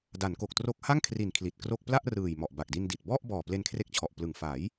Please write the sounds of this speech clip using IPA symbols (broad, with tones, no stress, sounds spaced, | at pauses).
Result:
d a˩˦ n k o˨˩ k̚ t r o˦˥ k̚ h a˥˩ ŋ kʰ r i˨˩ n kʰ l i˨˩ t̚ k r o˥˩ k̚ p l a˥˩ ʔ r ɯː˨˩ j m ɔ˨˩ ʔ b a˨˩ k̚ d i˧ n d i˨˩ t̚ b ɔ˥˩ ʔ b ɔː˨˩ p l e˧ n kʰ r e˦˥ k̚ t͡ɕʰ ɔ˨˩ ʔ p l ɯ˨˩ ŋ f a˩˦ j